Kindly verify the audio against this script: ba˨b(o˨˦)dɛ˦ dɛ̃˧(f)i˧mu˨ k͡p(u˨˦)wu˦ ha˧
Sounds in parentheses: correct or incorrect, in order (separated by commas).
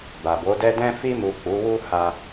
correct, correct, correct